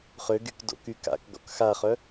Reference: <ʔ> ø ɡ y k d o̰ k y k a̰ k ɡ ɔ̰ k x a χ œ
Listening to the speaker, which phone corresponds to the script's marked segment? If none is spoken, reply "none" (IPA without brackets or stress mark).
χ